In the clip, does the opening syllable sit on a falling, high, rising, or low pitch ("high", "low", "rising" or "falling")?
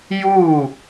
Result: falling